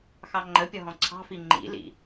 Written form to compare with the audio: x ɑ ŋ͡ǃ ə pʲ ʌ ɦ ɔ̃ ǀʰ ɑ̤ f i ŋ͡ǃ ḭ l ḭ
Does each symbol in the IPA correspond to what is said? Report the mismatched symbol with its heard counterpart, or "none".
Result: none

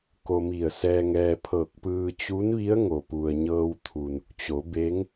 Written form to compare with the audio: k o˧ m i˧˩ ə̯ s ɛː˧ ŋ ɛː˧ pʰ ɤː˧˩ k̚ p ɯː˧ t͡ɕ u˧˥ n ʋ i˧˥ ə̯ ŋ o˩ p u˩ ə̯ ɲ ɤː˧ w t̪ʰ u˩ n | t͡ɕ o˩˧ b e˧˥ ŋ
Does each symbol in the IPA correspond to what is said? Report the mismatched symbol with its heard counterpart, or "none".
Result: none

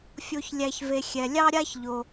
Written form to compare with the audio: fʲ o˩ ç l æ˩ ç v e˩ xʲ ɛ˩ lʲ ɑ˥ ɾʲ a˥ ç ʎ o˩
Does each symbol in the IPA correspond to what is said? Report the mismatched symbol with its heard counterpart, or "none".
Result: l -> lʲ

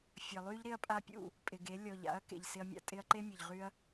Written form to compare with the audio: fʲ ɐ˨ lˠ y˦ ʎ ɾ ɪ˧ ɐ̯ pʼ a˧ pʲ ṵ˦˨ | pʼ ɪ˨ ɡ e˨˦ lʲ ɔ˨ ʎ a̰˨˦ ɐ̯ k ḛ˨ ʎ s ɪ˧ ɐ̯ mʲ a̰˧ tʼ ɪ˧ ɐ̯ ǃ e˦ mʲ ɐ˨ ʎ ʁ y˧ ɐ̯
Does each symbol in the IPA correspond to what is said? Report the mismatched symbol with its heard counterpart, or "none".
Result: none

